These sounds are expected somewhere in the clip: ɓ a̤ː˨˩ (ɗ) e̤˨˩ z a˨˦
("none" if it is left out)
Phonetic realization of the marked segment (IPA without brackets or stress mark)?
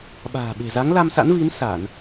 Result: ɓ